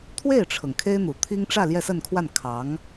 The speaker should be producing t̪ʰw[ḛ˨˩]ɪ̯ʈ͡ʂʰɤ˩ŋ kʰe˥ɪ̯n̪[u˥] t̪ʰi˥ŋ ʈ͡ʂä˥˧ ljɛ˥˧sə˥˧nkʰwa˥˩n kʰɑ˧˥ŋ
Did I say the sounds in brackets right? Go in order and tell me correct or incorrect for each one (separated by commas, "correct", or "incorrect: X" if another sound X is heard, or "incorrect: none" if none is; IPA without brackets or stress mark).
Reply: incorrect: e˥˩, incorrect: u˨˩